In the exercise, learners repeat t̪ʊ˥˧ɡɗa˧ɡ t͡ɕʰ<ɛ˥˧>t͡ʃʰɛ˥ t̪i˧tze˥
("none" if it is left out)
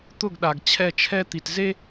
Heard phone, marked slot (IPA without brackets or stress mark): ɛ˥˧